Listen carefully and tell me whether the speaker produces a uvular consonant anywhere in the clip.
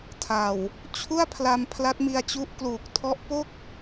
no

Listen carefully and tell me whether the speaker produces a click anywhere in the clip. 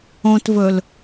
no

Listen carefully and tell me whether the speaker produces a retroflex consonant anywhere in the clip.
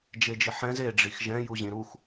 yes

